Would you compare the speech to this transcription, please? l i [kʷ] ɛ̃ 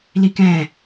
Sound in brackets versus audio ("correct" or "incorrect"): incorrect